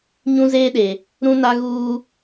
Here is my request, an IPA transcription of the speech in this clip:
ɲ ũ˦ z eː˦ ɗ e˨ | ɾ ũ˦ n a˦ ɣ uː˦

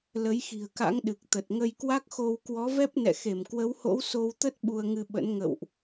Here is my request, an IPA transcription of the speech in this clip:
l ə˨˦ j x i̤˨˩ ə̯ k a̰˧˥ ŋ ɗ ɨ˨˩ k̚ t̪ ə˨˩ t̚ ŋ ə˧ j k w a˦˥ k̚ x o˧ w k w ɔ˨˦ v ɛ˦˥ p̚ n ɛ̰˧˨ x e˧˩ m k w ə˨˦ w h o̰˧˥ w s o˧ w t̪ ə˦˥ t̚ ɓ u˧ ə̯ ŋ ɨ˧ ɓ ə̰˧˥ n ŋ ə̰˧˨ w ʔ

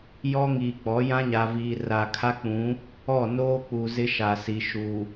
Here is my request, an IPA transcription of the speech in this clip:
j ɔ˦ ŋ iː˨ k͡p ɔ˨˦ j ã˦ ɲ a˨ v iː˨ r a˨ kʰ a˦ k͡p ũ˨˦ | ɔ˦˨ n oː˦ k͡p u˨ z ɪ˦ ʃ a˨ s i˨ ʃ u˨

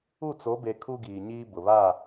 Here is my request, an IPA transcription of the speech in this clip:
u˦˨ t͡s o˨˦ b e˨ kʰ u˦ ɡ iː˨ ɲ iː˦ b ʊ˨ β a˦˨

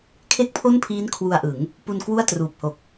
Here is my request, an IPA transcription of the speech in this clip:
kʰ e˥˩ k̚ pʰ o˥˩ n pʰ iː˦˥ n kʰ w u˧ a̯ ʔ ɯ˩˦ ŋ | p u˧ n k w u˥˩ a̯ t r uː˨˩ p̚ h o˨˩ k̚

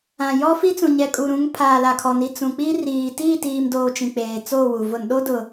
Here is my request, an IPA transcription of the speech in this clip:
ã˨ j ɔ˦ f i˦ t͡s ũ˨ ɲ ɛ˨ kʼ u˨ ɾ ũ˨˦ ŋ pʰ aː˨ l a˨ kʰ ɔ˨ n i˨ t͡s ũ˨ k͡p i˦ r iː˨ t iː˦˨ t iː˨ m d oː˨ t͡ʃ ĩ˨ k͡p eː˨ t͡s oː˦˨ w u˨ v ʊ˨ n ɗ o˦ d ʊ˨

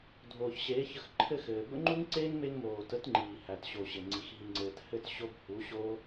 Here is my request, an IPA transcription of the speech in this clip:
dʱ oː˨ ç ɕ eː˨˦ ç ə˧ x ǃʰ ɘ˦˨ x ɘː˨ b ə̰˦ ŋ͡ǃ u˦ ŋ ǀ eː˦ ŋ m e˧ ŋ m oː˨ t ə˨˦ t ŋ͡ǃ iː˨ h æ˨ t ɕ o˨ ɕ ɘ˨ ŋ͡ǀ i˨ x ɦ i˨ ŋ͡ǀ ɘː˨ t h ɘ˦˨ t ɕ o˦ b h u˨˦ ɕ oː˦

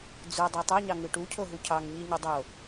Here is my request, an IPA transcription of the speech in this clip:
d͡z u dˤ e tˤ ɑ ɲ ɑ ŋ ɯ ʈ u cʰ o ɦ u cʰ ɑ ŋ ɲ i ɲ ɯ dˤ o

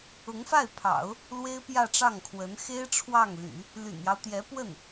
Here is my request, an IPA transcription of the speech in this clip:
ʊ˧˥ ŋ f a˥˩ ɪ̯ pʰ ɑ̰˨˩˦ ʊ̯ | l w e˥ ɪ̯ p j ä˥˧ ʈ͡ʂ ɑ˥˩ ŋ kʰ w ə˧˥ n x e˥ ɪ̯ ʈ͡ʂʰ w ɑ˥˩ ŋ l y̰˨˩˦ | l y̰˨˩ n j ɑ˦ ʊ̯ t̪ j ɛ˧˥ p w ə˥˩ n

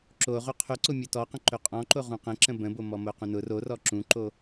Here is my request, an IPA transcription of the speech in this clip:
ǁ o ʁ ɵ qʰ ɵ ǀ ʊ mʲ o t ɔ q ə̃ ǃ ɵ qʼ ɔ̃ ǃ o ʁ ũ q ə̃ ǁ ə̃ b ə̃ b o m ɔ m o q ũ n ʊ r o r ɔ ǁ ũ ǃ o

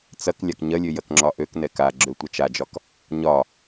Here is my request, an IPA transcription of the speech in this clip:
t͡s ɐ k lʲ a k ɲ ɐ lʲ ø j ɐ k ŋ͡ǁ ɒ ʔ ø k n ɛ k a ɡ͡ǁ ø tʷ ɐ t͡ʃ a d͡ʒ ɒ k | ɲ ɒ

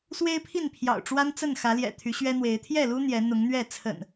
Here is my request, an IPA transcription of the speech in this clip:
s w e˦ ɪ̯ pʰ i˥˨ n pʰ j ɑ̰˨˩ ʊ̯ ʈ͡ʂ w a˦ n t͡s ə˥˨ n x ä˨˦ l j ɛ̰˨˩ t̪ʰ y˨˦ ɕ ɥ ɛ˦ n̪ w e˨˦ ɪ̯ t̪ʰ j ɛ˥˨ l u˦ n̪ j ɛ˨˦ n̪ ʊ˨˦ ŋ n̪ ɥ ɛ˥˨ t͡sʰ ə̰˨˩ n

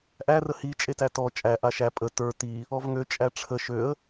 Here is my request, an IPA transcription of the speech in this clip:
ʔ æ r ə h i t͡ʃʼ e t æ t ɔ t͡ʃʼ æ ʔ a ʃ æ pʼ ə t ə˞ t i | ɔ v ŋ ø t͡ʃʼ æ ʈ͡ʂʰ ə ʃ ø ə̯

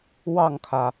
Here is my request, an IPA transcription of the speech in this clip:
w ɑ˥˩ ŋ kʰ ä˩

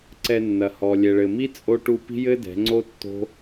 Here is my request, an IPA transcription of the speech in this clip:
ǀ ɛ˧ nː ɐ˨ h ɔ˨ lʲ ɛ˨ ɭ ɘ˨ m i˦ t͡sʼ o˦ ʈ u˧ p i̤˦ j ɘ˦ d ɛ̤˨˦ ŋ͡ǀ o˦ tː o̤˦

